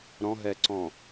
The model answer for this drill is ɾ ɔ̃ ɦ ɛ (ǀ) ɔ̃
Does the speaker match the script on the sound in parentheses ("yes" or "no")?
yes